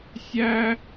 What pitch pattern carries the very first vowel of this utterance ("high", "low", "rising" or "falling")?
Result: high